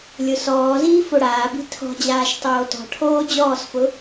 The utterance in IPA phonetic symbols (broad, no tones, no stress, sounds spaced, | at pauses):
lʲ ʊ s ɔː z iː f o ɽ aː b i̤ tʰ ɔ̤ d͡ʑ aː ʃ tˤ oː t ɔ̤ ʈʰ oː d͡ʑ ɔː s f ʊ